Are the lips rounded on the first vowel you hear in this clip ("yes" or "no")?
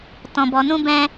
yes